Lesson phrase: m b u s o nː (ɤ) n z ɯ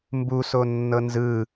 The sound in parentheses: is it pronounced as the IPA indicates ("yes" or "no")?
yes